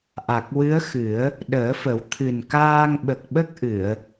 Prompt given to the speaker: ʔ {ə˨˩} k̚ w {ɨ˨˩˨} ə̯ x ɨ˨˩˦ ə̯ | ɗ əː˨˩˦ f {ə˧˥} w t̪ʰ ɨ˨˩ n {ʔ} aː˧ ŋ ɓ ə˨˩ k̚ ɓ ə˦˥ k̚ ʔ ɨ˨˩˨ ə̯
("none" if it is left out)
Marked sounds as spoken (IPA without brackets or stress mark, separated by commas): a˨˩, ɨ˧˥, ə˨˩˦, k